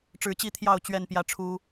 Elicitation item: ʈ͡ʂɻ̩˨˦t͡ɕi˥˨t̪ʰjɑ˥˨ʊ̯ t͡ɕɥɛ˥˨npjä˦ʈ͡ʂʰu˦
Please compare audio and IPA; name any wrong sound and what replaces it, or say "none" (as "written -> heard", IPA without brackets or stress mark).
none